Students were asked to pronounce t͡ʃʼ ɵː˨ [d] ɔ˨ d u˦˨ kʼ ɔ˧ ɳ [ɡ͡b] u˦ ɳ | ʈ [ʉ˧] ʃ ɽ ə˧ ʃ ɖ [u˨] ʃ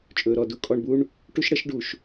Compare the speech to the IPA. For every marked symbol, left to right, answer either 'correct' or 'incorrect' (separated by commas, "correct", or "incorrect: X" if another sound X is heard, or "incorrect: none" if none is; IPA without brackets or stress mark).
incorrect: ɾ, incorrect: b, incorrect: u˧, correct